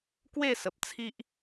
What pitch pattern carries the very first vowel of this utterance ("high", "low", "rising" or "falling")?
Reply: falling